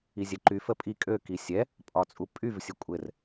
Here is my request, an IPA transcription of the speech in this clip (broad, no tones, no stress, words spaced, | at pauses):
izʲɛǃy fəpʼi kʼø kisʲɛ | pʼɒt͡sʼupʼyv sʲəkʷʼɘr